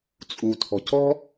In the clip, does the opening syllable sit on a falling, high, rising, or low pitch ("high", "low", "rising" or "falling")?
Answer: low